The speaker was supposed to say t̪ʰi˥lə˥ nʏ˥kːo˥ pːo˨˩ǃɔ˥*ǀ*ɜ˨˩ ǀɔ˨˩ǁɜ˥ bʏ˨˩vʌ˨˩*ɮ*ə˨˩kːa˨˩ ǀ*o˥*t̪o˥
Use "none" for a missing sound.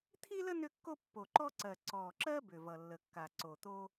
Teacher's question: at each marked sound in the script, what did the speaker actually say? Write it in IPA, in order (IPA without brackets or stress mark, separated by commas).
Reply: ǀ, lː, o˨˩